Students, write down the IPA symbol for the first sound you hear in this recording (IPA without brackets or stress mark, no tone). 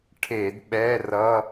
ʈʰ